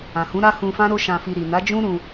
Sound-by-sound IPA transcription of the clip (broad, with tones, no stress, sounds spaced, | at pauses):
ã˨ h ũ˨˦ ɾ a˦ h ũ˧ f ã˦ ɾ o˦ ʃ ã˧ f i˧ ɾ i˨ n a˨˦ d͡ʒ ũ˦ ɾ ũ˧